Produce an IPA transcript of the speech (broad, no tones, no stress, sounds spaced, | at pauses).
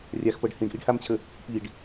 rʲ a x p ɤ ɖ h ĩ ɖ ʔ i ɖ h a m t͡ɕʰ ə | p i ɖ